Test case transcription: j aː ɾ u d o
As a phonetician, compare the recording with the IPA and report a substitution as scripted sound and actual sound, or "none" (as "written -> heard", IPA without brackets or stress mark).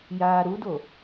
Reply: none